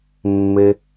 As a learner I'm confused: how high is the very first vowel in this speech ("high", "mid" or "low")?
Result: mid